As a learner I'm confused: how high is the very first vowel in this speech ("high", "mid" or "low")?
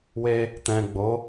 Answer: mid